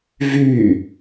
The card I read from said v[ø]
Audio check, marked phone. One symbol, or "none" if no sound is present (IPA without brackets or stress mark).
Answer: y